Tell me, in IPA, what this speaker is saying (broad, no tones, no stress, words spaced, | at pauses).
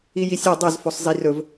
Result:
ijisʲɛ dˤøz fosˤzirɵv